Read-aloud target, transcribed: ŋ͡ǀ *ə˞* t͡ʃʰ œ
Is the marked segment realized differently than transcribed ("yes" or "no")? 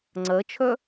yes